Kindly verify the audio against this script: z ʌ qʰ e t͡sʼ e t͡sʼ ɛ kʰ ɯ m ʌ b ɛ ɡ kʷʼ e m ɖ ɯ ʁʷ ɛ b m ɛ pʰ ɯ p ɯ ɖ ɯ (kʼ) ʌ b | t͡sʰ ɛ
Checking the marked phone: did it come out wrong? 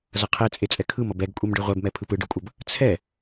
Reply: yes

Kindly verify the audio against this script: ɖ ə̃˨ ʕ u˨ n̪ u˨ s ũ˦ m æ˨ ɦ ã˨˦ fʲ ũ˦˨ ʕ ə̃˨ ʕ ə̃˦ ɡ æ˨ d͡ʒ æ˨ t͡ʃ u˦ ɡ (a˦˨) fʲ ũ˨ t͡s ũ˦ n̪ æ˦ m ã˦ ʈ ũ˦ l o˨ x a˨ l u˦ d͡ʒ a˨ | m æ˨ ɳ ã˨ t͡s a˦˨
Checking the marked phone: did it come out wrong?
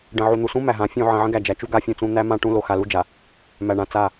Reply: yes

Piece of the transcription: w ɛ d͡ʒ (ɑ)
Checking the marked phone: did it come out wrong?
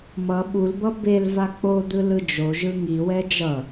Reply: yes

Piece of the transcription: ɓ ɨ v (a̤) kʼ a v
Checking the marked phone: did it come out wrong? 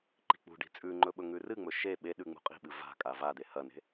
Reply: no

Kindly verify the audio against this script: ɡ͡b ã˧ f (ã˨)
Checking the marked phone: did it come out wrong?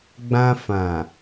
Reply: no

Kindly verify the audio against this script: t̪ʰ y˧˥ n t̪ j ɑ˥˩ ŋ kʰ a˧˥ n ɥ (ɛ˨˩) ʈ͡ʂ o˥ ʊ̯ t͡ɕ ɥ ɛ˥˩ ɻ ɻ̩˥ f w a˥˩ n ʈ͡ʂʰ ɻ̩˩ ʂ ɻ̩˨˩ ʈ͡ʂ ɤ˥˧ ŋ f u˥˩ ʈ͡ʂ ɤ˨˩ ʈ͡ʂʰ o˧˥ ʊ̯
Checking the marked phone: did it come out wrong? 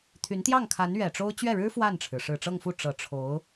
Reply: no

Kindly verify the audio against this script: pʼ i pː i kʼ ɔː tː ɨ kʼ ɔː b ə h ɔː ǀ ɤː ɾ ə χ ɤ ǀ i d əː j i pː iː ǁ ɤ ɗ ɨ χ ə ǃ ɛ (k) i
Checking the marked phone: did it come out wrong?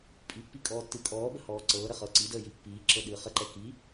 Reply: no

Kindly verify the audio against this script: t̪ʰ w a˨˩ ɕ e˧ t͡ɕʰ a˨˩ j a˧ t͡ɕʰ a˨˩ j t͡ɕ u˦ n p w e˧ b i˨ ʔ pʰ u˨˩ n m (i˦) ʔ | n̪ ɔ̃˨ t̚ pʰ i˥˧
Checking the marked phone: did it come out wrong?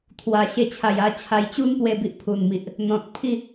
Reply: yes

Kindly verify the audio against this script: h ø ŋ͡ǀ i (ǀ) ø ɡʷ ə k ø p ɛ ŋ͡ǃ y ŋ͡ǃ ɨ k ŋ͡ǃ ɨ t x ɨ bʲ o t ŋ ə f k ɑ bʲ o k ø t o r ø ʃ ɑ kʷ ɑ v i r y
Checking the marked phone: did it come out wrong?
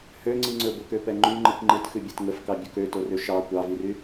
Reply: yes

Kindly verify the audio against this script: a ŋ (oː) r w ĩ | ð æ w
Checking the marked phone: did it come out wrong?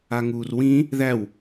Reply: yes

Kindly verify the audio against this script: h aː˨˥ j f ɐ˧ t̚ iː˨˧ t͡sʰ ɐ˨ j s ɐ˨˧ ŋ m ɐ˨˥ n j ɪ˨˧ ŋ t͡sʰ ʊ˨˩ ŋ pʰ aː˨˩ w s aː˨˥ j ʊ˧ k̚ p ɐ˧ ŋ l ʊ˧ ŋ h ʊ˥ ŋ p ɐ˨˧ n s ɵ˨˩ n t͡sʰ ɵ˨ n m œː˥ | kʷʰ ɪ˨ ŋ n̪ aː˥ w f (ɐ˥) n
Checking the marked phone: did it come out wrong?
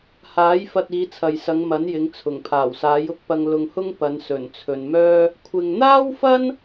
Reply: no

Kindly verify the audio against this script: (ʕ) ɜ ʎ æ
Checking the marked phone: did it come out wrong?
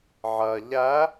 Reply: no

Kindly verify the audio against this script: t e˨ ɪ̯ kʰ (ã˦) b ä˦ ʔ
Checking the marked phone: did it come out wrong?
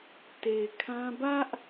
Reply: no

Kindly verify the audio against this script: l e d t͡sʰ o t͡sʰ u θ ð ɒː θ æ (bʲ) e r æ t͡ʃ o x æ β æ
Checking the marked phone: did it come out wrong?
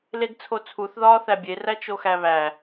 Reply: no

